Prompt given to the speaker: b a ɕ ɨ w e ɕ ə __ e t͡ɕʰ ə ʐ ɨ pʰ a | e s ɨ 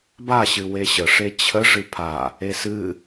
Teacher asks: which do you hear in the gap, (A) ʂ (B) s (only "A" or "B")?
A